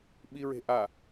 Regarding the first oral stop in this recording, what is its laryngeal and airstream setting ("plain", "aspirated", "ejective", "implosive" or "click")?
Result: implosive